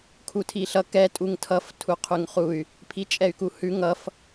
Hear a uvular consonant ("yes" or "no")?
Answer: yes